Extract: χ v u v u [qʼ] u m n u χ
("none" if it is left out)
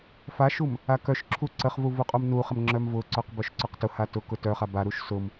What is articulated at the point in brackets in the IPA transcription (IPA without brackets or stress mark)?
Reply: qʼ